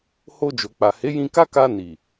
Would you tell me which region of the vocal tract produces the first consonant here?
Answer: throat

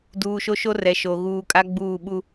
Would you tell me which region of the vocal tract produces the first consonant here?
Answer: tongue tip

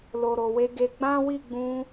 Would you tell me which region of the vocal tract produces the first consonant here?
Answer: tongue tip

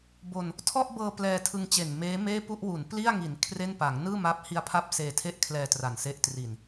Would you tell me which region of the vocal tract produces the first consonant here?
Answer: lips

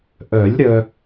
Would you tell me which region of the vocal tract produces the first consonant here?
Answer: throat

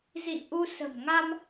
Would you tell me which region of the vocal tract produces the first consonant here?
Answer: tongue tip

